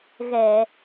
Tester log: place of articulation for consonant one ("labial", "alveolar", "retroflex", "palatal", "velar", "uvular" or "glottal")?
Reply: velar